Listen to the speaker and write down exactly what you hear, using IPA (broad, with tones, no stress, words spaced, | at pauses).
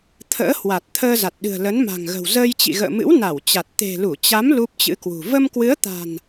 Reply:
t̪ʰə̰ː˧˥hwa˨˩t̚ t̪ʰəː˧za˨˩t̚ɗɨ̤˨˩ə̯lə˨˦n ma̤˨˩ŋɣə̤˨˩w zəː˧jt͡ɕḭ˧˨ɣə̰ː˧˨mɨ̰˧˥w na˧˩wt͡ɕa˨˩t̚ t̪e̤˨˩lu˧˩t͡ɕa˨˦m lu˦˥p̚t͡ɕɨ̰˧˥kwṳ˨˩ və˧mkwɨ˨˦ə̯t̪a̤˨˩n